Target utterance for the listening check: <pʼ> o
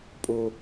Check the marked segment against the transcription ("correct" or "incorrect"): correct